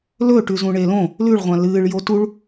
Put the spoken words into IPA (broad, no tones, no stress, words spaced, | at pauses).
lɵ ʈʉzũɳelõ | lʉɭʁʷã lɨːɭjo tuɭ